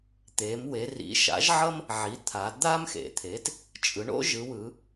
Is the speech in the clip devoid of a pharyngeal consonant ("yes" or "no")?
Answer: no